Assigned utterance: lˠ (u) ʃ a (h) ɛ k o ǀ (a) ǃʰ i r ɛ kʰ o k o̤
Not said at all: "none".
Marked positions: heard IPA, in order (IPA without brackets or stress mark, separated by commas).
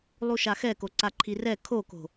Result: u, x, a